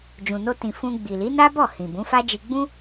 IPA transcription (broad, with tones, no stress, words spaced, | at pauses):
d͡ʒũ˨no˧tĩ˨ fũ˧ɡ͡bi˨li˨˦na˦ bɔ˦˨ hĩ˨bũ˨˦fa˦ d͡ʒi˧ɡ͡bũ˦